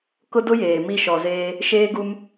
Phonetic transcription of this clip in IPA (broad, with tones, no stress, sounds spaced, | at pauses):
k ʊ˦ d ʊ˦ j eː˨ m i˦˨ ʃ ɔ˨ z eː˦ | ʃ eː˦ ɡ u˦ m